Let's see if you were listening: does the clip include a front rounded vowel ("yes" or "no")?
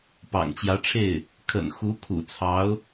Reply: no